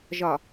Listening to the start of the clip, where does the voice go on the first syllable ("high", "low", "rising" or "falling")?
low